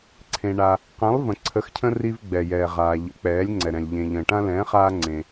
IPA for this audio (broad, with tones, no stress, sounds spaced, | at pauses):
ǀʰ ẽ˨ ɳ a˨ | q ɛ̃˨˥ lˠ v ə̃˨ ǀʰ ə˨˥ x cʰ ə̃˦ r i˦ v ɡ͡b ɛ˨ j ɛː˨ ʁ aː˨ ʎ ə̰˨˥ k͡p ɛː˨˥ lʲ ŋ͡ǀ ɛ˨ ɾ ɛ̃˨ lʲ ʎ ẽ˨ ʎ ə̃ː˨ ʈ ã˦ l ɛ̃ː˨˥ χ aː˦ ŋ͡ǀ ẽ˨